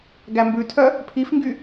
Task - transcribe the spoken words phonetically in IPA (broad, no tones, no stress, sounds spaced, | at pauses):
ɡ æ m b ʉ tʰ œ | pʰ i f ŋ ɡ y